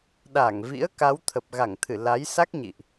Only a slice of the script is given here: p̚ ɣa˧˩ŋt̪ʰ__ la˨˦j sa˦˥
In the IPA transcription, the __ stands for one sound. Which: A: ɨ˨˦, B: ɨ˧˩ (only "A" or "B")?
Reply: B